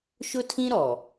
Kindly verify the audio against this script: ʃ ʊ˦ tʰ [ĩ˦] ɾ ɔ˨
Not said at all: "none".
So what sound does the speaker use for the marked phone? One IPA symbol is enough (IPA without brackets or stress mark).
ĩ˦